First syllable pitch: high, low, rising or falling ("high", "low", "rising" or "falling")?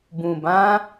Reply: low